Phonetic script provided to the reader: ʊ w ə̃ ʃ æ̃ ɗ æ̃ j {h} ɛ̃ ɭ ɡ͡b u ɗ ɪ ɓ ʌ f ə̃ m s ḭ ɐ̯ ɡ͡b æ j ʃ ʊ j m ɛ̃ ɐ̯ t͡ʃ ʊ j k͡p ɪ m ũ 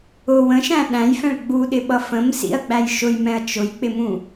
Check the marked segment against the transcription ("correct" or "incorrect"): incorrect